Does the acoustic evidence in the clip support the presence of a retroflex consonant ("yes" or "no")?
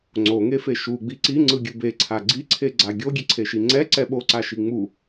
no